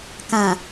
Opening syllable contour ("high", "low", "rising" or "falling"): low